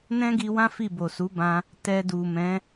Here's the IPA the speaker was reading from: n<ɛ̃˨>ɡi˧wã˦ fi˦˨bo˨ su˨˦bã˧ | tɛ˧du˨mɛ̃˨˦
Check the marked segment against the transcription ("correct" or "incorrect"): incorrect